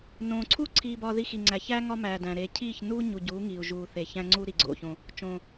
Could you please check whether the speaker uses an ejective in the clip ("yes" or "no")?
no